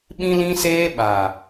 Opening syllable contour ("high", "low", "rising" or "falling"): high